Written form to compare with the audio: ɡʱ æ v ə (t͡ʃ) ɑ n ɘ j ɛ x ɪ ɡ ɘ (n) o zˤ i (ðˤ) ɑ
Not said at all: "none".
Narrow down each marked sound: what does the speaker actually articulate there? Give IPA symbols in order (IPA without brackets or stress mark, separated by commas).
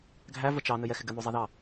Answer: t͡ʃ, n, ð